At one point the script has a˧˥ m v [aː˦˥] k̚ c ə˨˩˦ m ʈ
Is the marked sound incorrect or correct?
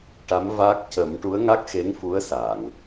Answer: correct